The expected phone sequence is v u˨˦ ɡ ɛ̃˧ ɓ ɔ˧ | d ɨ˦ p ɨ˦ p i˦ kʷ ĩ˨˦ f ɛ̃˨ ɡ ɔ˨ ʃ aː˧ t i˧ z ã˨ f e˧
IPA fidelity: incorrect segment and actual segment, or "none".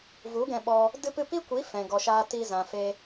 ĩ˨˦ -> i˨˦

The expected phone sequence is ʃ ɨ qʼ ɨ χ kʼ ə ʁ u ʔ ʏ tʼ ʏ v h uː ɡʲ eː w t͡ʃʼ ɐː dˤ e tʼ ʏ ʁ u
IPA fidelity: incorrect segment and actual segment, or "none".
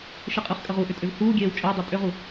ɐː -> əː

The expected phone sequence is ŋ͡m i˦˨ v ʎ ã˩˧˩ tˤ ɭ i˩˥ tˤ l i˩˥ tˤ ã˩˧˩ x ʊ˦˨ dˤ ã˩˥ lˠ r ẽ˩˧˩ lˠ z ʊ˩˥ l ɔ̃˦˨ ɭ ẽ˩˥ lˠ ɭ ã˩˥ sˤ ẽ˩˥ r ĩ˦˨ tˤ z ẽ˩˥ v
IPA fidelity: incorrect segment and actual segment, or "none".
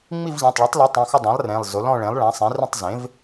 none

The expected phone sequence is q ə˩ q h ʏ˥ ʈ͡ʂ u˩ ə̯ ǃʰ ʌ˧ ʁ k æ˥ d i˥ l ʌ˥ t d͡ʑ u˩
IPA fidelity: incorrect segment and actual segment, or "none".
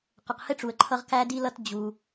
ʏ˥ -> ɪ˥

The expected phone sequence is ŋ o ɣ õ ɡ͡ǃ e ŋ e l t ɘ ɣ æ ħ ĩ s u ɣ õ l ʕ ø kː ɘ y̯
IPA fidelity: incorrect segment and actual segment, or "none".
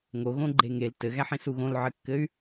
ø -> ɘ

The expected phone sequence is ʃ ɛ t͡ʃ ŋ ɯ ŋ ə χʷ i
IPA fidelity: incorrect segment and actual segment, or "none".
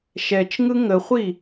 none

